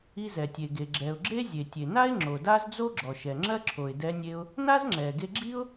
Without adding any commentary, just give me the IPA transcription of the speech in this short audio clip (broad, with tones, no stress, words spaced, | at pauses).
i˧zɛ˩tʲe˩ɡe˩ ɡ͡ǁɛ˩ʊ̯ɡ͡ǁe˥ zʲe˩tʲe˩na˥ɪ̯ ŋ͡ǁo˩da˥zd͡zo˥ɡ͡ǁɔ˩ ʃɛ˩ŋ͡ǁɜ˥ǁʰo˩ɪ̯ dɛ˧nʲe˧ʊ̯ | na˥zŋ͡ǁɛ˩ɡe˧ɡ͡ǁi˥ʊ̯